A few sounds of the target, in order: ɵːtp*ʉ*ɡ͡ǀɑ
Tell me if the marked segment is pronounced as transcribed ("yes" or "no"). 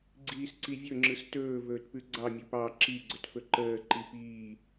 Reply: yes